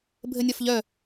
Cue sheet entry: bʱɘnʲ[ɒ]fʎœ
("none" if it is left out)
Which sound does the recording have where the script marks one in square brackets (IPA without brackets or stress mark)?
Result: ɒ